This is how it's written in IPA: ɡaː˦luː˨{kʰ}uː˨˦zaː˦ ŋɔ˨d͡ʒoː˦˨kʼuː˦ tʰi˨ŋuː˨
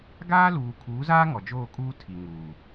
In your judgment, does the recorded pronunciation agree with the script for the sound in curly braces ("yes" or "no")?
yes